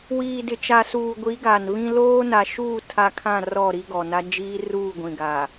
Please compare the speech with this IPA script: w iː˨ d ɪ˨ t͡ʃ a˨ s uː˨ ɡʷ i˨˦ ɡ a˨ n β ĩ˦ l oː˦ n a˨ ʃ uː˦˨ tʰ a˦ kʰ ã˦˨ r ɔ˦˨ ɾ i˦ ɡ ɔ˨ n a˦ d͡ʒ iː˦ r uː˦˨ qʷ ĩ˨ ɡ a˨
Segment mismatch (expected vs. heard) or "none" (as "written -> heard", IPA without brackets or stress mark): qʷ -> ɡʷ